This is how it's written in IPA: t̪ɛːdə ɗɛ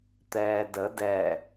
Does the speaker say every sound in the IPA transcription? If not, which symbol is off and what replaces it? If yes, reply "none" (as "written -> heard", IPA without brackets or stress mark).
ɗ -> d